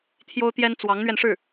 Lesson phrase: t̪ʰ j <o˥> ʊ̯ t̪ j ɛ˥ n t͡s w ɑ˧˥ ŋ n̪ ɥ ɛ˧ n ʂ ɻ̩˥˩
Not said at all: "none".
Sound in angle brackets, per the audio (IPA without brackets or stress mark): o˥